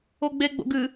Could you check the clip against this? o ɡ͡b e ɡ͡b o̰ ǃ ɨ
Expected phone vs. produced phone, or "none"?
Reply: ǃ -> ɡ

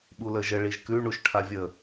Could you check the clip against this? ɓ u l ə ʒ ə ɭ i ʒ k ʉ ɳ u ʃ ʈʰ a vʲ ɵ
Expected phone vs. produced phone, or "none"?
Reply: ɵ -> ə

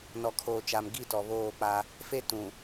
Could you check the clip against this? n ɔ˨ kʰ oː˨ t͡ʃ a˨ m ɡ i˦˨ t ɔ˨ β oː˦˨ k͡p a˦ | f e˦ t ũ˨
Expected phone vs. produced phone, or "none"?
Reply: none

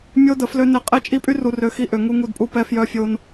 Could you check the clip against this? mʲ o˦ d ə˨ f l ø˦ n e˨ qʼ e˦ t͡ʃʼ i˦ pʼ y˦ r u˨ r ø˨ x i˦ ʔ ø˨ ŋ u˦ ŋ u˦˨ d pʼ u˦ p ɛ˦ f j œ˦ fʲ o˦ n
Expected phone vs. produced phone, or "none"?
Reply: none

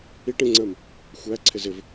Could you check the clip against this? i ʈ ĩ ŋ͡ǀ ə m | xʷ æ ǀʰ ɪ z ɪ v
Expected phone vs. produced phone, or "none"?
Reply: none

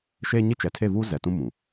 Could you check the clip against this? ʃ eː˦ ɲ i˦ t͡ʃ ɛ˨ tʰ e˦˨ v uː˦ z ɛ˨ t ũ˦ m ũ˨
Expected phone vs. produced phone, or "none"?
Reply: none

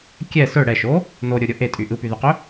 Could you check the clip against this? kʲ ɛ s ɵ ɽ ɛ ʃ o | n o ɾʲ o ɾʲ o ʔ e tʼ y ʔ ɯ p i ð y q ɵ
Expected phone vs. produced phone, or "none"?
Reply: i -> y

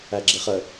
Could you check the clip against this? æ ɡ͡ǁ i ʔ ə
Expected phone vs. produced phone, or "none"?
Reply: ʔ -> χ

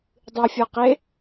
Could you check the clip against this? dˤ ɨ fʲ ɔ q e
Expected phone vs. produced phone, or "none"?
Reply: none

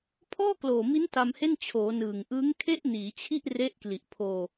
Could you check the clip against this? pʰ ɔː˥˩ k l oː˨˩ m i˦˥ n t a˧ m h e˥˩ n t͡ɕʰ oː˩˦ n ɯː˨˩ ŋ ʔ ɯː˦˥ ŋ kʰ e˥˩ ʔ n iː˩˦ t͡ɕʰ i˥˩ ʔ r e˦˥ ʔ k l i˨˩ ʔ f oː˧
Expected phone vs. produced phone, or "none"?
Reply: f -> pʰ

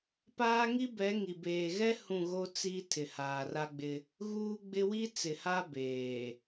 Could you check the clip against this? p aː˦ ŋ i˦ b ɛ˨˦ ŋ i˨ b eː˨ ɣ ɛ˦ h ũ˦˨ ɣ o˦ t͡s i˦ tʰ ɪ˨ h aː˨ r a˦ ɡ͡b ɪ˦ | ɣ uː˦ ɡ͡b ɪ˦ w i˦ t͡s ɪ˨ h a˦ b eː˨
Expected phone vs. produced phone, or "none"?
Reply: none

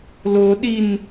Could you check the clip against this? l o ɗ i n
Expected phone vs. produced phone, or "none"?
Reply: none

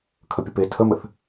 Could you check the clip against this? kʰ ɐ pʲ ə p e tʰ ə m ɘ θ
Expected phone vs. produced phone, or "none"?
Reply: ɐ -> ə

